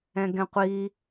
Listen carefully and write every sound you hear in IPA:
ɛ̃ ɡ ɛ̃ qʷ i

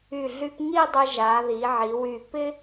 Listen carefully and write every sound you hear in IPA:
y˧˩ ɮ y˧ p ŋ i˥˧ dˤ ɪ˧ ʒ a˩˧ ð i˩˧ ʕ i˩˧ w y˧˩ p ɪ˥

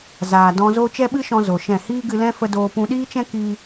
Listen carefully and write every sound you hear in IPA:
z aː˨ d ɔ̃˧ z o˦ t͡ʃ ɛ˦ ɓ ɨ˦ ʃ ɔ̃˧ z o˨ ʃ ɛ̃˦˨ h iː˦ ɡ ɨ˧ l ɛ̃˦ f ə˧ d oː˧ p ũ˧ ɗ iː˦ t͡ʃ ɛ̃˦ k iː˦

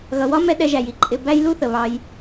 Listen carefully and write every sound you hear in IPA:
ɣ ʌ˨ w ɒ˦ m ɛ˧ ɗ ɛ˧ ʒ æ˨ j i˦ ǃʼ ɪ˧ b æ˦ j l u˦ θ ə˨ β ɑ˧ j

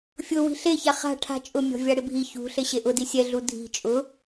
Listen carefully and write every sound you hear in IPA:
fʲ ʊ w i̤ ɬ e ç a χ a̤ ʈʰ a̤ t͡ʃʼ ʊ mʲ ɔ̤ vʲ a ɽ ɪ bʱ i ç ṳ ɬ e ɕ e ʔ ʊ d i sʲ ɛ ɮ u dʱ i̤ t͡ʃʼ ʊ

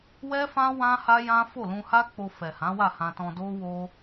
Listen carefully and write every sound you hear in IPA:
w ɛ˦ f ã˦ w ã˦ h a˦ j ã˦ f o˦˨ l ũ˧ h a˦ k͡p o˧ f ɛ˨ h ã˨˦ w a˦˨ h ã˧ t ɔ̃˧ d o˦ w o˧

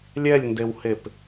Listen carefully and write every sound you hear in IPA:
lʲ ɛ lʲ n d e w h e p

